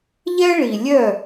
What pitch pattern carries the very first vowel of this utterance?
high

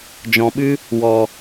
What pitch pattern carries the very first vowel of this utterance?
low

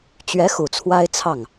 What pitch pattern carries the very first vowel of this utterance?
rising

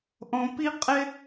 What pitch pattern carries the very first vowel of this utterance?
low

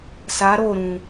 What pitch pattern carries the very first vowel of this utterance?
rising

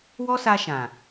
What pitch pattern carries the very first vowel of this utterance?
high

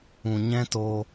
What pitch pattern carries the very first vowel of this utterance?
low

